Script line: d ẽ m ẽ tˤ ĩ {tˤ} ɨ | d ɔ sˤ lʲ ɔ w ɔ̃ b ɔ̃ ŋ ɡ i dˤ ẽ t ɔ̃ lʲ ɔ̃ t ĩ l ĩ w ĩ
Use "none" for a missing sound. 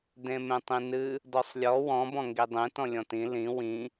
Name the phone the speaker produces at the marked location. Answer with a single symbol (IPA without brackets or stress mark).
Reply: n